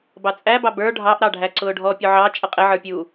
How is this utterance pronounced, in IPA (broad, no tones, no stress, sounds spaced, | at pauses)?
b ɑ t͡sʼ æ b ɑ b ə˞ ɖʱ ɑ ʔ ɾ ɑ ɖʱ æ ǀ ʊː ɖʱ ɔ pʲ ʊ ʕ ɑ t͡ʃʼ ʌ qʼ ɪ ʕ ə˞ pʲ uː